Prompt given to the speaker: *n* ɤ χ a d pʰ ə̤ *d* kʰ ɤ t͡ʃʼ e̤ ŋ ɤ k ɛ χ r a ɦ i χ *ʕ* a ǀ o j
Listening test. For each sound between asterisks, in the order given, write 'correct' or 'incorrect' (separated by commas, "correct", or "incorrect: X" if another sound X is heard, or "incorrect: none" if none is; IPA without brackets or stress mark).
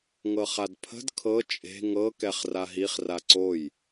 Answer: incorrect: ŋ, correct, incorrect: r